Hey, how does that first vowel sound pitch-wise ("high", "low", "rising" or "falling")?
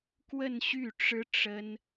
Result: falling